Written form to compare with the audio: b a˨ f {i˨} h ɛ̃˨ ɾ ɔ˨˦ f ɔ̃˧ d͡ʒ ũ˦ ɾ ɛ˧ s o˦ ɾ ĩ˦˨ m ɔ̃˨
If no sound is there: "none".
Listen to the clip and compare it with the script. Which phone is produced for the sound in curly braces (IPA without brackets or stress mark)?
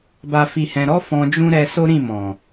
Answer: i˨